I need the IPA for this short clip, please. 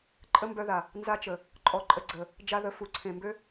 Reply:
ǃʼ ə˦ m b œ˧ ð a˨ | n z a˧ t͡ʃ ə˨ | ǃʼ ɔ˧ ǃʼ ə˧ ɡ͡ǀ ə˨ | d͡ʒ a˧ ð ə˨˦ f u˨ ǀʰ ẽ˨ m b ø˦

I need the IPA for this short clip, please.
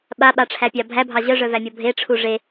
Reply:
ɓ a ɓ a ʈ͡ʂʰ æ pʲ ɑ bʱ æ bʱ ɑ ʑ œ ʐ œ v æ mʲ ɔ bʱ e ʈ͡ʂʰ u ʐ e

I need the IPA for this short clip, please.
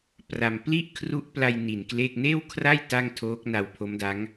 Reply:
p r a˧ m p l i˥˩ ʔ kʰ r u˦˥ ʔ p l a˧ j n i˨˩ n k l e˥˩ k̚ n eː˥˩ w kʰ r a˥˩ j t a˥˩ ŋ tʰ oː˦˥ k̚ n a˧ w pʰ o˦˥ m d a˦˥ ŋ

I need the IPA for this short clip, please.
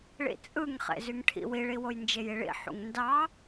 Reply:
ɭ ḭ t͡sʼ ɯ ŋ χ ḛ z y ŋ ʈʰ ḭ w i ɭ i w o j n d͡ʒ e j i ɭ ḭ ħ ṵ ŋ n d ɑ

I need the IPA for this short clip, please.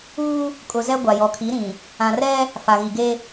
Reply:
uː˦ | kʼ ʊ˨ z ɛ˦ ɡʷ a˨ j ɔ˨ kʰ i˨˦ ɾ ĩ˨ | ã˨ r ɛ˦ | f a˨ ɣ i˨ ɡ e˦

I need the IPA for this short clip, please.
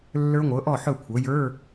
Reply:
lː ə˞˦˥ ŋʷ ɤ˩˥ ʔ ɔ˥˩ ħ ɵ˥˩ kʷʰ ɤ˩˥ j ə˞˧˥˧

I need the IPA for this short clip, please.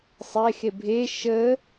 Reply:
sˤ e x e bʱ e ʃ ə

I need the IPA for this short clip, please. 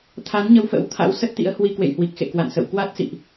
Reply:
t̪ʰ a˨˦ n ɲ ə˧ w f ə̰˧˥ w t̪ʰ a̰˧˥ w s ə˦˥ t̚ t̪ ḭ˧˥ ə̯ h w i˧ k w ḛ˧˨ j h w i˨˩ k̚ x ḛ˧˨ k w a̰˧˨ n s ə̰˧˨ w k w a˦˥ t̚ s ḭ˧˨ ʔ

